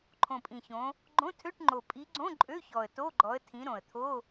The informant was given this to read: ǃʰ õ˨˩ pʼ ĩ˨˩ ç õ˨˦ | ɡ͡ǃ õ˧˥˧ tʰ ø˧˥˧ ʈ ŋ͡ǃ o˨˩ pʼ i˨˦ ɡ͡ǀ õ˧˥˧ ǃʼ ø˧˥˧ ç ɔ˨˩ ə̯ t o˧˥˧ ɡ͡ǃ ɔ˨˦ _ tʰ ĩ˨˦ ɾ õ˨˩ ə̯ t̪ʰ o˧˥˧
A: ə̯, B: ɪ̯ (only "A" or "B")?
A